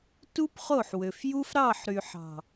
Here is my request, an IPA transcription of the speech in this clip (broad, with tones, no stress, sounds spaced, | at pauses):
t u˦ p χ o˦˨ ħ w ø˨ f j u˦ f ɾ ɑ˦˨ ħ ɾ y˨ ħ ɑ̤˨